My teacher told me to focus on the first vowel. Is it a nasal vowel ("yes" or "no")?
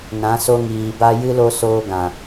yes